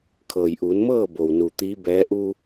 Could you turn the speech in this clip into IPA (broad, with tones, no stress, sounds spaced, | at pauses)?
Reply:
kʰ ɤː˩ j ʔ uː˩˧ n m ɤː˥˨ b o˩ w n u˩ t̪ iː˧˥ b ɛː˧˥ ʔ u˧